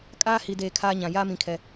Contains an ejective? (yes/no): yes